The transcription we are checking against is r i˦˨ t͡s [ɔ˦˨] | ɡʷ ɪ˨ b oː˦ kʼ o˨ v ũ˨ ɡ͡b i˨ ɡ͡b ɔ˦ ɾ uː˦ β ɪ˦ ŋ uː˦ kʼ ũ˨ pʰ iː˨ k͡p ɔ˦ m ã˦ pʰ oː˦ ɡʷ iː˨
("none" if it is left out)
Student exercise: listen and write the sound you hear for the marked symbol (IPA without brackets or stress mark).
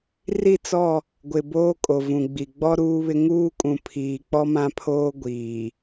ɔ˦˨